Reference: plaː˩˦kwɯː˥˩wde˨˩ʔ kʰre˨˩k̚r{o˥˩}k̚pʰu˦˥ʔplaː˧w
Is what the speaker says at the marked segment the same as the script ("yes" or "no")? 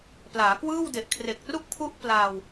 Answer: no